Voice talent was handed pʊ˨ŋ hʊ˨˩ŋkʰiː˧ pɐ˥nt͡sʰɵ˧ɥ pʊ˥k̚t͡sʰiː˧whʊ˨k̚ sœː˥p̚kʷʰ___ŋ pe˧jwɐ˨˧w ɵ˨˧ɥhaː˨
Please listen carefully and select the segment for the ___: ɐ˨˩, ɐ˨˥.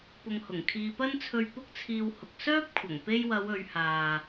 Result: ɐ˨˩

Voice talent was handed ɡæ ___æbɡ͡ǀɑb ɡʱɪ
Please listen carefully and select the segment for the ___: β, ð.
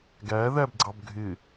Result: ð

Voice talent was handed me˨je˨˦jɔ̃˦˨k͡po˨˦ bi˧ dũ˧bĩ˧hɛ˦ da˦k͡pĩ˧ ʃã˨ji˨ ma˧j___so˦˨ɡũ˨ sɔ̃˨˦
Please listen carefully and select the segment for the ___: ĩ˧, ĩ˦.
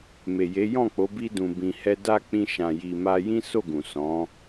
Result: ĩ˦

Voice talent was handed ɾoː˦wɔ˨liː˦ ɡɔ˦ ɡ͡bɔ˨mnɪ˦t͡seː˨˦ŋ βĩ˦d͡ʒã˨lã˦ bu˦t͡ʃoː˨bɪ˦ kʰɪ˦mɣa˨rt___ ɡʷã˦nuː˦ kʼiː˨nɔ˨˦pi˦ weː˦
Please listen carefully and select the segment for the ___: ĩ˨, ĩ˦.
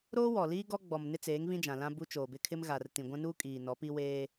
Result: ĩ˨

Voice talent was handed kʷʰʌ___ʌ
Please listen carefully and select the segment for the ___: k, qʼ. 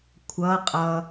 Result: qʼ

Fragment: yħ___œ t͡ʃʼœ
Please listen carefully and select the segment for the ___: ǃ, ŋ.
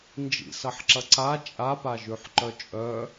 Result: ǃ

